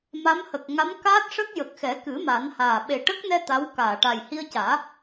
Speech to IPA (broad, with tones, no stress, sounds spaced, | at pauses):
m a˧˥ m h ə˨˩ k̚ ŋ a˧˥ m k aː˦˥ t̚ ʂ ə˦˥ k̚ j ə˨˩ k̚ x ɛ˨˩˦ k ɨ˨˩˦ m a˨˩˦ n h aː˨˩ ɓ e˨˩ ʈ ə˦˥ k̚ n ɛ˧ t̪ a˧˥ w k aː˨˩˨ ʈ a˨˩ j h i˧ ə̯ c aː˨˩˦